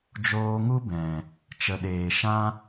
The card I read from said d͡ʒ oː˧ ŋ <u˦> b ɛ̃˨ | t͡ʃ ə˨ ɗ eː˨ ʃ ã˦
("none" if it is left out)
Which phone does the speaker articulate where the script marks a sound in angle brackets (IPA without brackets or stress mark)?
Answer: u˦